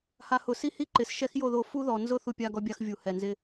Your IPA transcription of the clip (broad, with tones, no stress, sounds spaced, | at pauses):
h a˨ h ʊ˨ s i˦ h i˦ ǃ ɪ˨ s ʃ ɛ˦ x j o˦˨ ð o˨ f u˦ ð ɔ˨ n z ʊ˦ θ u˦ pʲ a˦ ɡ ɔ˦ bʲ a˦ x vʲ u˨ h ɛ˨ n z ɪ˦